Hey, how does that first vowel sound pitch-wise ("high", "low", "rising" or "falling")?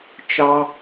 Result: high